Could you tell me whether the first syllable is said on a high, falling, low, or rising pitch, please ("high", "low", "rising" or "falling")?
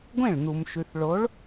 falling